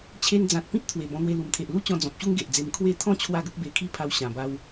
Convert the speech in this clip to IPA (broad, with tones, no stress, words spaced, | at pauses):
t͡ɕʰe˧nd͡zã˨t̚ pĩ˦t̚t̪ʰwe˨˩ bɔ̃˧n̪we˧ lu˨˩mt̪ʰe˨ʔlu˥˧t͡ɕɔ̃˧ d͡zɔ̃˨p̚ɕu˦ŋ ɡe˨ʔd͡ze˧m kʰwe˦ t̪ʰɔ̃˥˧ t͡ɕʰwa˥˧ɡə˦k̚ be˧kʰi˥˧pʰa˧w ɕã˨˩ba˧w